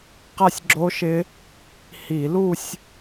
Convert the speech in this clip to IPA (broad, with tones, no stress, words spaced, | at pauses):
qa˥˧sʲɡ͡ǁo˦˥ʃɪ˦˥ | hi˧˩˧lu˥˧sʲ